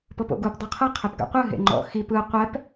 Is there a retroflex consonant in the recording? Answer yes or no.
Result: no